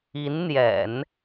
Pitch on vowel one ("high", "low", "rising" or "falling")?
rising